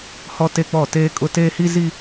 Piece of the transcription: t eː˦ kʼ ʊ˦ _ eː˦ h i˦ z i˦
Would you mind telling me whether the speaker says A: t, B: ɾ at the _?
A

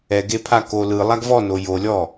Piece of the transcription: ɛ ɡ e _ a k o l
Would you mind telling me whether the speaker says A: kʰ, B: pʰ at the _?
B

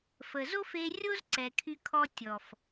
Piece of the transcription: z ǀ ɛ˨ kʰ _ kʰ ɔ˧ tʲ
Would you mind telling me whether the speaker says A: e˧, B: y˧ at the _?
B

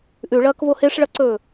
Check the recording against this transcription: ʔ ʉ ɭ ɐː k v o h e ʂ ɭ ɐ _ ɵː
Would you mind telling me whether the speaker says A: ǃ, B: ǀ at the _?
B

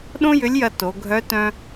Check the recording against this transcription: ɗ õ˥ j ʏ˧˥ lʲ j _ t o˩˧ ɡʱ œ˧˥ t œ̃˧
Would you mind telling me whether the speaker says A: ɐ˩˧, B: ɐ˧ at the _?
B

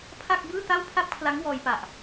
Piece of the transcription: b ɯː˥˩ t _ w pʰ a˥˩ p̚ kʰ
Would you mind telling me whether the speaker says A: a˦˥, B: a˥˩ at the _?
B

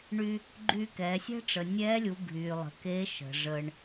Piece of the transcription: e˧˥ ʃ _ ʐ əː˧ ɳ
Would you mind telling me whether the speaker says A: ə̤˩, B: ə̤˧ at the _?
A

